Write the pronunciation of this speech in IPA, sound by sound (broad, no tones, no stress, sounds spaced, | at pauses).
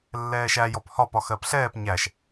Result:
lː ɛː ʃ æ j ɔ p h ɒ p ɒ x ɜ p ɬ ɛː p ɲ æ ʃ